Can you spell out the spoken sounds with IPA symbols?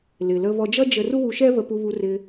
l ɪ˨ l ə˧ β ɔ˧ d͡ʒ ʌ˦ d͡ʒ ə˧ r u˦ w u˧ ʃ ɛ˦ β ə˧ p u˧ β u˧ r ɪ˧

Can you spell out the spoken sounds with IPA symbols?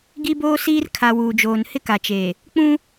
ɡ i˦ b oː˦ s iː˦ r kʰ a˨ w uː˨ d͡ʒ oː˨ n h ɪ˦ k a˨ t͡ʃ eː˨ | k͡p ũ˦

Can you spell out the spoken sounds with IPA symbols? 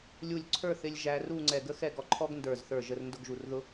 lʲ u˧˩ lʲ ǀʰ ə˞˥˧ θ ɪ˧ lʲ ʒ æ˧ r u˥˧ ŋ͡ǀ ɛ˧˩ ɡ ə˥ x ɛ˥˧ ɡ ɔ˧ ǃʰ ɔ˥ ɡ n d ə˞˧˩ z θ ə˞˧˩ ʒ ə˧ r n d ʊ˥˧ ɡ ʒ u˧˩ r ð ʊ˥

